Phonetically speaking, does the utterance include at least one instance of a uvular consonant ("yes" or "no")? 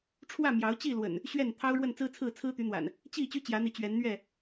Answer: no